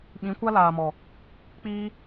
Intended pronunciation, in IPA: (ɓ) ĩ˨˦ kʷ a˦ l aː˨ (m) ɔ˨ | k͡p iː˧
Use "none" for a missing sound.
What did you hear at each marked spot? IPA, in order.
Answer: ɓ, m

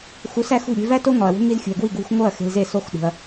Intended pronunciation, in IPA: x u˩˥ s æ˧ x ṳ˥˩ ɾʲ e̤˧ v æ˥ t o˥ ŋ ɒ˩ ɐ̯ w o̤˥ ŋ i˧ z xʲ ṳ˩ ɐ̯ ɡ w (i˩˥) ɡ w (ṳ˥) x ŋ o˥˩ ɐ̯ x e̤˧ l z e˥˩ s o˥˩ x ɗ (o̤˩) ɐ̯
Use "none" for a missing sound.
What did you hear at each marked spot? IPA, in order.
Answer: i˥˩, ṳ˧, ṳ˩

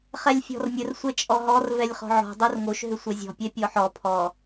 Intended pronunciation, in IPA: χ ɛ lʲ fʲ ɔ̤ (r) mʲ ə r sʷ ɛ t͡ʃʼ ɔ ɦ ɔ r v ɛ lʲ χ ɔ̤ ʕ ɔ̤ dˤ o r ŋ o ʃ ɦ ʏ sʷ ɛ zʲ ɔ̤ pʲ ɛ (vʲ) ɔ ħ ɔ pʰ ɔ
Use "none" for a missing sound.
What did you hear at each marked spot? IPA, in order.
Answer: r, pʲ

